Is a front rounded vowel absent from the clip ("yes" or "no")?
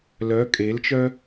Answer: no